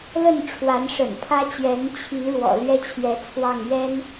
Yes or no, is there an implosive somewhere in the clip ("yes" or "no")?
no